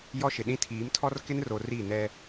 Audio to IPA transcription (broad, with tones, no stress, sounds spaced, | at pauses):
j ɔ˦ ʃ ɪ˨ ɗ ĩ˦ tʰ iː˨˦ m tʰ ɔ˦ r k ɪ˦ n r o˨ r i˦˨ n ɛ˦